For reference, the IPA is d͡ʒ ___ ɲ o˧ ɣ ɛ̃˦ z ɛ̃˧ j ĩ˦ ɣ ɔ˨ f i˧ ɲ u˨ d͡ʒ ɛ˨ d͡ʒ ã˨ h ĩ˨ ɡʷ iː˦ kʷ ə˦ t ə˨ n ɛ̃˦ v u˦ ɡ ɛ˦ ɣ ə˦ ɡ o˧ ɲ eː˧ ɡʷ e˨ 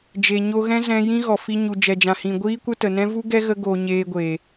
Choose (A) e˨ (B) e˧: A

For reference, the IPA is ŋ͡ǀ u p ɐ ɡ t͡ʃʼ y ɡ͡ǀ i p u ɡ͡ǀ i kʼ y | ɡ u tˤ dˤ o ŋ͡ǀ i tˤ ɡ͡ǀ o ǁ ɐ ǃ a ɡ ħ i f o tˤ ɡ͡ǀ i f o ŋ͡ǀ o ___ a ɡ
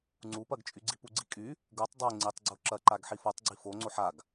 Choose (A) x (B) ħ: B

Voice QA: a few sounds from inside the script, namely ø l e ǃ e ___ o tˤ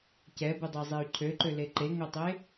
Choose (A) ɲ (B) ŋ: B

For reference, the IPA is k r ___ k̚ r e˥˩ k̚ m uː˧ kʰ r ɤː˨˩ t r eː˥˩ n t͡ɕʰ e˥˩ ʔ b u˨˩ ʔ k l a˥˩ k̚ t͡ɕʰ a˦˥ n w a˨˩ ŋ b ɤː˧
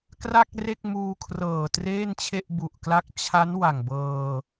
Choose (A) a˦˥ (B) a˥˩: B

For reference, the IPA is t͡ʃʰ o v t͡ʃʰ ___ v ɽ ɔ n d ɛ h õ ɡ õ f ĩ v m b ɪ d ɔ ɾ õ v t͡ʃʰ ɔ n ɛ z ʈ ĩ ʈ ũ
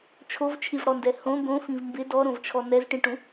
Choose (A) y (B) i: B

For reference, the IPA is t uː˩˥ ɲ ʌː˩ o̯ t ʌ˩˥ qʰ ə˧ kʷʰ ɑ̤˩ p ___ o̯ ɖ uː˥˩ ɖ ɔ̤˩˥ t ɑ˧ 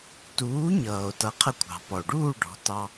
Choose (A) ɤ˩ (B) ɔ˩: B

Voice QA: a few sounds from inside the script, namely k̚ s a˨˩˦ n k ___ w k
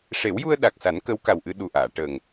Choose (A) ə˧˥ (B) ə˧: A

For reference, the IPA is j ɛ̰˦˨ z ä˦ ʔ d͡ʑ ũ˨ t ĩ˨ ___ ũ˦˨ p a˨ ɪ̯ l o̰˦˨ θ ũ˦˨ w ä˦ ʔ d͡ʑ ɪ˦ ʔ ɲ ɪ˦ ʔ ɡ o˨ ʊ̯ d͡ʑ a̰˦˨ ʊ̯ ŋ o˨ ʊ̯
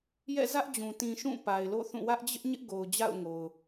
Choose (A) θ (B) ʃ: B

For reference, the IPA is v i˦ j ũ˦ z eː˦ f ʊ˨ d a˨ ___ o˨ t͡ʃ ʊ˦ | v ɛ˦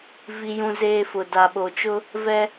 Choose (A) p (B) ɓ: B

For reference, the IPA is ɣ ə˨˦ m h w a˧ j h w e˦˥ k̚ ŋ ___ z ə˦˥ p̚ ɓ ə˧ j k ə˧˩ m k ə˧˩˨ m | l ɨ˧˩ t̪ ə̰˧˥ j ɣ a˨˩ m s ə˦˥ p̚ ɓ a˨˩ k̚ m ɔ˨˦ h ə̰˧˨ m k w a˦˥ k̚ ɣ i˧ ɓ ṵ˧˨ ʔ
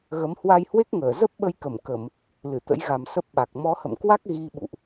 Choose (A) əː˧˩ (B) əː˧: A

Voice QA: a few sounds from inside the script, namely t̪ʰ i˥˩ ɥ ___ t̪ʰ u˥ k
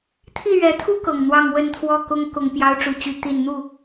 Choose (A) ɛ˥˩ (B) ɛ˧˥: B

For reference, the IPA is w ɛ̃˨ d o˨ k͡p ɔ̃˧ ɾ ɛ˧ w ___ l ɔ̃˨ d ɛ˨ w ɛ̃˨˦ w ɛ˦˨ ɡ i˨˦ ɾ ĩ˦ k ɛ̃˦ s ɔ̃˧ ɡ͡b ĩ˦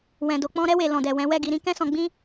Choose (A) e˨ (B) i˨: A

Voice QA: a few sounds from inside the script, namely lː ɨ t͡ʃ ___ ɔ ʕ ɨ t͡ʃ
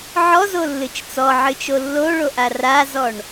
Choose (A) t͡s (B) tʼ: A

